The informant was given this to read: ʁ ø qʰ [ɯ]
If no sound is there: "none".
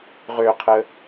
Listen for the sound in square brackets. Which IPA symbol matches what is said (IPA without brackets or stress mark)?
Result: ə